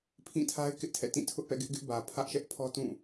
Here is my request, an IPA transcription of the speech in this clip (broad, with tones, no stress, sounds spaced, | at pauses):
pʰ ĩ˦˨ tʰ a˦ ɪ̯ k ɪ˦ ʔ tʰ ɛ̰˦˨ t ĩ˦˨ tʰ ʊ˦ ʔ p ɛ̰˦˨ ɡ ɪ˦ ʔ ɡ ɪ˦ ʔ b ä˨ pʰ ä˦ ʔ ʃ ɛ˦ ʔ pʰ ɔ˦ t ũ˦˨